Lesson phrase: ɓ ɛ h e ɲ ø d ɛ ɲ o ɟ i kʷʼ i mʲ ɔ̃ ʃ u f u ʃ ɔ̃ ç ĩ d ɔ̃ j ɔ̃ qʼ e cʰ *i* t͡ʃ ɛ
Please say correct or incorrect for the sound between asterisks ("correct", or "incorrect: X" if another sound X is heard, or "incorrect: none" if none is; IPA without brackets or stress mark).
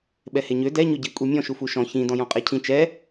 incorrect: ĩ